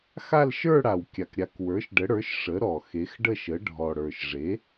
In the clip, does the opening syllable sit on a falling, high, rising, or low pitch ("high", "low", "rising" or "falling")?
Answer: falling